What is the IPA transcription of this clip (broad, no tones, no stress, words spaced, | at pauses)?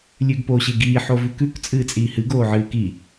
lʲʉɡpoːɕeɡiː ħovʉkʉk t͡sʼɨːt͡sʼiːhɨ ɡoːʕɨːki